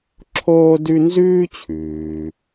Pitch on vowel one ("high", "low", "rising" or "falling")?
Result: high